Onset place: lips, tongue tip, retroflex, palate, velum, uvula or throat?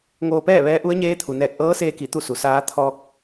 velum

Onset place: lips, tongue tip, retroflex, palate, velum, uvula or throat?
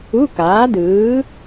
velum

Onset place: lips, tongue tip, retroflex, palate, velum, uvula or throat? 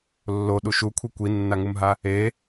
tongue tip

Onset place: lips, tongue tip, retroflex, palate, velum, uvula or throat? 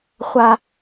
uvula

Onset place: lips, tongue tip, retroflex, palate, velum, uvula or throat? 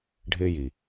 retroflex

